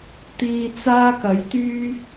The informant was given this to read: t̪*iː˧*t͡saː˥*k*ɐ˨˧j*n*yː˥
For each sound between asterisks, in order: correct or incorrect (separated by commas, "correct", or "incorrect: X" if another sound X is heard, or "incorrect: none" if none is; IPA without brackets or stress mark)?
correct, correct, incorrect: t̪